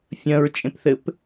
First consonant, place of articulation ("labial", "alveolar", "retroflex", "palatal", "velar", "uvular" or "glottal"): labial